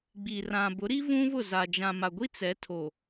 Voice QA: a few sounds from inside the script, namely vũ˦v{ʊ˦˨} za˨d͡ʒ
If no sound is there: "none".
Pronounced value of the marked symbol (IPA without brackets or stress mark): ʊ˦˨